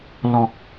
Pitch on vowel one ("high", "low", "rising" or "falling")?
low